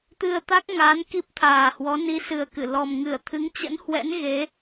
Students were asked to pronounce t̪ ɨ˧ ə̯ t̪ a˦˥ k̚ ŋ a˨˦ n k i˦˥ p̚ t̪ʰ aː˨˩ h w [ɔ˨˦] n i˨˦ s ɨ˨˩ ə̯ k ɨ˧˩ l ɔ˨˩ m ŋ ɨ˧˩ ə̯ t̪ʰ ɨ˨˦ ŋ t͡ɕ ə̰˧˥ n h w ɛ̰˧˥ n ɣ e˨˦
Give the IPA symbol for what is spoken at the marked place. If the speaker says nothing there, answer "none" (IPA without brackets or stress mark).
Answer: ɔ˨˦